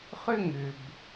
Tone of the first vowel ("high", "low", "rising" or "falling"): high